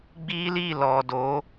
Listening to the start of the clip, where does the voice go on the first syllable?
high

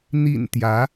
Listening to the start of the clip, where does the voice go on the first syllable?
low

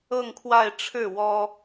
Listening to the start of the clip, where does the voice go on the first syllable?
falling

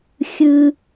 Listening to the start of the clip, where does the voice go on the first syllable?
high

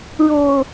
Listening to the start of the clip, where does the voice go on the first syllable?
low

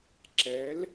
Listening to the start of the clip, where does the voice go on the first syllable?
rising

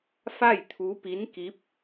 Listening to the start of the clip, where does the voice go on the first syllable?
falling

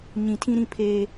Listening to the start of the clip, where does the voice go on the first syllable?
low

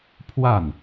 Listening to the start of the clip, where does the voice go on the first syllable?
falling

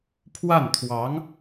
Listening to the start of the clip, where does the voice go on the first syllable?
falling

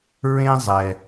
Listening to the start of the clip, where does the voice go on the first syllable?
high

